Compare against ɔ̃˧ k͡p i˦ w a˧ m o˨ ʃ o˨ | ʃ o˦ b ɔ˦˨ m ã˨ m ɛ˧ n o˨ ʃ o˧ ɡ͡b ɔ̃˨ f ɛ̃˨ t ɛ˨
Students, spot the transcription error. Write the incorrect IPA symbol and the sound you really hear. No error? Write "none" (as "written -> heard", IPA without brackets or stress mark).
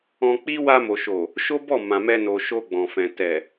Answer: none